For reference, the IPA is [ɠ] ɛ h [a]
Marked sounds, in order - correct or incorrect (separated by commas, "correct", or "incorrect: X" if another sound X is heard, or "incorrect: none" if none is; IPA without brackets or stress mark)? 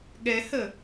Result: correct, incorrect: ə